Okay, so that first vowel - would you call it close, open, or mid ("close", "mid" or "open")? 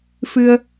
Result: close